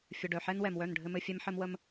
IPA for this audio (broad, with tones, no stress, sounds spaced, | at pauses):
fʲ ə˨ ɖ œ˨ ħ ɛ˦ n w ɛ˨ m w œ˦˨ n ɖʱ ɘ˨ m ɘ˨ fʲ ɛ˦ m ħ ɘ˦ m w ə˦ m